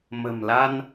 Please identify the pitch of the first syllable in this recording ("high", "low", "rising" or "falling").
low